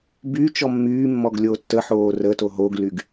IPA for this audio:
b y t͡ʃ ɔ mː yː mː ɔ ɡ lʲ oː tː ə ħ oː r ə t o ɦ o ɡ l y ɡ

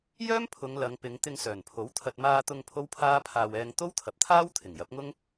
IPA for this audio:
j œː˥ m pʰ ʊ˨˧ ŋ l ɐ˨˧ ŋ p ɪ˨˧ ŋ t̪ ɪ˧ ŋ s œː˨˩ n pʰ o˨˥ w t̪ʰ ɐ˧ t̚ m aː˧ t̪ ʊ˧ ŋ pʰ o˥ w pʰ aː˥ pʰ aː˧ w ɛː˧ ŋ t̪ o˥ w t̪ʰ ɐ˨ p̚ t̪ʰ aː˥ w t̪ʰ ɪ˨˩ ŋ j ɐ˨˥ p̚ ŋ ʊ˥ ŋ

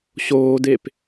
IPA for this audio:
ɕ oː d e p

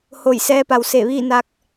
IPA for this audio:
h o˧˩ j s ɛː˧ p a˩ w s e˧˩ ʋ iː˥˨ n a˧ k̚

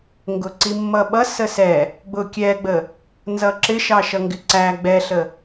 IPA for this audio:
ŋ ɡ ʊ ǀ i mː ʌ ɓ ʌ s ə s ɛ | ɡ͡b ʊ kʲ ɛ ɡ͡b ə | n z ʌ ǁ ɪ ʃ ɑ ʃ ʌ ŋ ɡ ɪ ǀ æ ɡ͡b ɛ ɬ ə

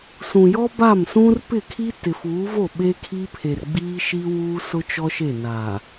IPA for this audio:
s ũ˨ j ɔ˦ b a˦˨ m s ũ˦ r p ɪ˦˨ kʰ i˦ t ɪ˨ f uː˨˦ v o˦˨ ɓ e˦ kʰ i˦ pʰ e˨ r ɡ͡b iː˦ ʃ i˦ w uː˦ s ʊ˦ t͡ʃ ɔ˦ ʃ e˦˨ n aː˨

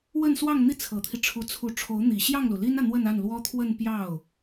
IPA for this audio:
w ə˥˧ n s w ɑ˥˧ ŋ n̪ i˥˩ t͡sʰ ɤ˨˩ t̪ʰ i˦ ʈ͡ʂʰ u˧˥ t͡sʰ u˧˥ ʈ͡ʂʰ o˧˥ ʊ̯ n̪ i˨˩ ɕ j ɑ˥˩ ŋ l u˩ l i˥ n ä˨ n̪ w ə˥˧ n a˥˩ n l w ɔ˥ t̪ʰ w ə˥˧ n p j ɑ˥˩ ʊ̯

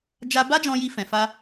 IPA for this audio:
d͡ʒ a˧ b a˦ d͡ʒ ɔ̃˧ j i˧ f ɛ̃˨ f a˧

